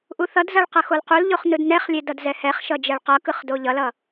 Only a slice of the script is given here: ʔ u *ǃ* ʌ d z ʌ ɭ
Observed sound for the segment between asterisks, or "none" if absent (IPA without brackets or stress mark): θ